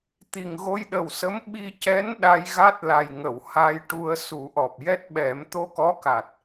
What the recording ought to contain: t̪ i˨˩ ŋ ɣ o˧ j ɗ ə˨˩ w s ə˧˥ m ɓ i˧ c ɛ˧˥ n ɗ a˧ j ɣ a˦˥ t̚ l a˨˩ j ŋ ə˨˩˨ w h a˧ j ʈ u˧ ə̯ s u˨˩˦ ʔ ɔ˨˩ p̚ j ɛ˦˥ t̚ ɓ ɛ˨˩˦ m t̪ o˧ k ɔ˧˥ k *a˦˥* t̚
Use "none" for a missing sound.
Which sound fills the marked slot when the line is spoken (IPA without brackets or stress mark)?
a˨˩